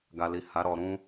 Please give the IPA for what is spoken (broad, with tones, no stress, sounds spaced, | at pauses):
ɡ a˨ l i˨ h a˨˦ ɾ ɔ˧ ɾ ũ˦